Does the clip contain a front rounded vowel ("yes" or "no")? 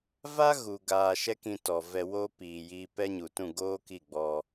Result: no